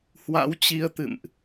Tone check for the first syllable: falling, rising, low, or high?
rising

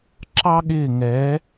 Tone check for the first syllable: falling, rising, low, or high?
high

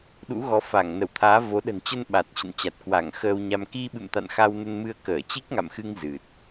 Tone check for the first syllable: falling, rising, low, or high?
rising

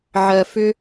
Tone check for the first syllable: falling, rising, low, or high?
low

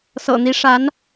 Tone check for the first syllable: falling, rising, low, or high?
low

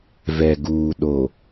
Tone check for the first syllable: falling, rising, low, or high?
low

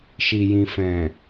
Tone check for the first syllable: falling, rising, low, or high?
low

